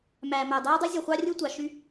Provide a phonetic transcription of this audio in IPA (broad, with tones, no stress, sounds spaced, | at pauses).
m æː˨ m æ˨ dˤ æː˦ dˤ y˦ zʲ o˨ χʷ ɑ˦ rʲ ɯ˦ tʷ ɑ˨ ʃ y˦